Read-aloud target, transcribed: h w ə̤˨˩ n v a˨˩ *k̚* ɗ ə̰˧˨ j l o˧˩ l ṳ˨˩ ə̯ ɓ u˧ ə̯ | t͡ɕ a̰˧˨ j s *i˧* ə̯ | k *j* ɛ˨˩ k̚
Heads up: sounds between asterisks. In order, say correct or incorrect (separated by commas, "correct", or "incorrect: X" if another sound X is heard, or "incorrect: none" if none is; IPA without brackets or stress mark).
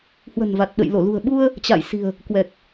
incorrect: t̚, incorrect: i̤˨˩, incorrect: w